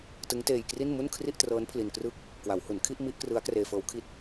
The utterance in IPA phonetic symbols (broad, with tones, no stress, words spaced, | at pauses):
tɯ˦˥ŋteː˧jkri˥˩n mu˥˩n kʰri˥˩ʔtrɤː˦˥n pʰli˧nkrɯ˥˩k̚ | kwa˩˦whu˩˦nkʰi˥˩ʔ mi˦˥ʔkrɯ˦˥a̯ kreː˧fɤː˦˥w kʰi˨˩t̚